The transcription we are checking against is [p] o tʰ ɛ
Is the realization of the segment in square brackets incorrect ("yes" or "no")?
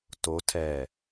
yes